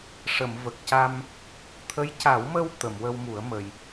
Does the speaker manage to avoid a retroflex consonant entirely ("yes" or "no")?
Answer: no